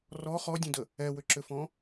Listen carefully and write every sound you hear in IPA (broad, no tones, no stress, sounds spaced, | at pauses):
r ɔ χ ɔ dʲ ə̃ d ə | ɛ w ʏ ǁ ʏ f ɔ̃